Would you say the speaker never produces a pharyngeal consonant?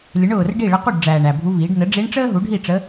yes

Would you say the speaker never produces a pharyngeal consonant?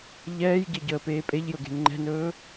yes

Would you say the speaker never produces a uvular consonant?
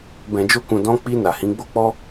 yes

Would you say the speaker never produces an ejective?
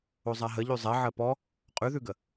no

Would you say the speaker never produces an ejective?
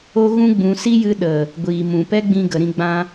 yes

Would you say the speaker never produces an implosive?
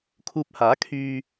yes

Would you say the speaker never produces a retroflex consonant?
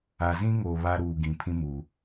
yes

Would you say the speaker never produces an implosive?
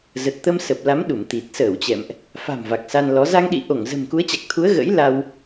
no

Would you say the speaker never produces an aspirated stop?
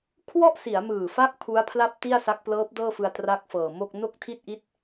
no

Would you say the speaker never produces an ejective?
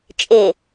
no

